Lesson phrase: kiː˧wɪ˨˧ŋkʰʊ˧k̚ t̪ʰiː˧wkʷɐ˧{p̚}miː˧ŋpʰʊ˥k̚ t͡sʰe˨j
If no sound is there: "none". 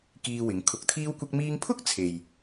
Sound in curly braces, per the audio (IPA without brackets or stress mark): k̚